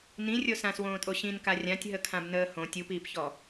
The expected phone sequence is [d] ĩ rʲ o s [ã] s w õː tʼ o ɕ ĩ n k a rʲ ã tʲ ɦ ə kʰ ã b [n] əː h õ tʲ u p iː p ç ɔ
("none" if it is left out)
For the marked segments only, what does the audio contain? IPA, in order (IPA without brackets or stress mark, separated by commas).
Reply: n, ã, n